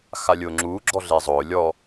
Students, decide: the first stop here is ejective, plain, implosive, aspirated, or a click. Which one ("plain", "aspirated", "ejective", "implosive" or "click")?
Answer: click